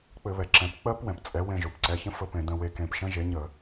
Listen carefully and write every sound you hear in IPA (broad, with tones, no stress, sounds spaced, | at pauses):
k͡p ɘ˧˩˧ β ɛ˩ ǁ ɛ̃˩˥ p k͡p ɜ˦˥ p w ɛ̃˩ p t͡sʼ ɛ˩˥ w ẽ˦˨ ʒ o˩ p ǀ ɛ˩˧˩ ç ə̃˦˥ f ə˦˨ p ẽ˧˩˧ d ə̃˦˨ w e˦˨ k ẽ˦˨ p ʃ ə̃˦˥ ʒ e˩˥ ɲ ə˧˩˧